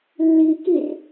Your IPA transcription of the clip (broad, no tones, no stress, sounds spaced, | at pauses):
lː i k i r